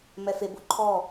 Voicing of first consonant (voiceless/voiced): voiced